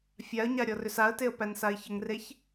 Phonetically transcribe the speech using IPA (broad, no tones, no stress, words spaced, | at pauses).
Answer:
fʲaə̯ɲa ɾʲɔrʏsaə̯teə̯ pænsaɪ̯çəŋreç